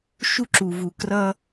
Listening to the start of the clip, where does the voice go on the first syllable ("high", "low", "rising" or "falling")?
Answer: high